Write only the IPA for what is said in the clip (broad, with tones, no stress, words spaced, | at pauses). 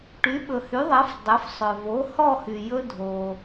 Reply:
ʈy˩˥ ɓɵ˩hy˩˥ðˤɛ˩˥f dˤɵ˩˥f sˤœ˩vo˩˥ hɔ˥˨hy˩jɵ˦ dʱo˩